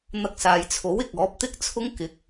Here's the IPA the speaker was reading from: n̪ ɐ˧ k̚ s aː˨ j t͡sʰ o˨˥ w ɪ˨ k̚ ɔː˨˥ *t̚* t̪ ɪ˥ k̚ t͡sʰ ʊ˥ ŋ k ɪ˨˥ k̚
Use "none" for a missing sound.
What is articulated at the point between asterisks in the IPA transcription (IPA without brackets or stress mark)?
p̚